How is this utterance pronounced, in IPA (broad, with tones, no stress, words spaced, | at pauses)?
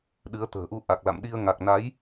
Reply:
ɗɨ˨˦ə̯t̪ə̤ː˨˩ʔu˧ ʔa˨˩k̚la̰˧˨mɗi˧ə̯ ŋa˨˩k̚na˨˦j